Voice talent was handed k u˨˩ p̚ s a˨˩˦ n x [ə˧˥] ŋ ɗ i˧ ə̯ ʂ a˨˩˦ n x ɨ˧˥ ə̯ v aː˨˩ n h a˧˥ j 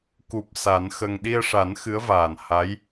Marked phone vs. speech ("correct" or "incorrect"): incorrect